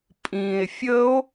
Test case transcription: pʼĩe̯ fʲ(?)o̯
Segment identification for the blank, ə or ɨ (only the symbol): ə